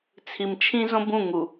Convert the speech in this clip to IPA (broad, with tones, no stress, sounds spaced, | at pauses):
t͡sʰ i˨ m t͡ʃʰ ĩ˦ z õ˦ b ũ˦˨ ŋ u˨